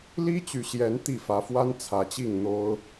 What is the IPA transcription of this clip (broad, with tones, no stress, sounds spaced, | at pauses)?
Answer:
l i˦ t͡ɕ y˨ ɕ j ɛ˨˦ n t̪ i˥˨ f ä˨˦ f w a˦ n t͡sʰ ä˨˦ t͡ɕ i˥˨ ŋ n̪ o˦ ʊ̯